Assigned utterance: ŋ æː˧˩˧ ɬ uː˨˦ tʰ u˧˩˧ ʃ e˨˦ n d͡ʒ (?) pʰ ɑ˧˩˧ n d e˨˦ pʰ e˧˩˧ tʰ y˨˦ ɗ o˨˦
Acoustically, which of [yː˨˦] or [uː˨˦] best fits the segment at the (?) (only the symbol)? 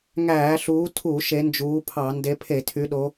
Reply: uː˨˦